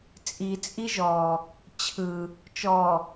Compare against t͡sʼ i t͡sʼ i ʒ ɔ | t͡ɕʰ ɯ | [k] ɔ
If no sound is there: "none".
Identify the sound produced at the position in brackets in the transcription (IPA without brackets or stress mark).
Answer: t͡ʃ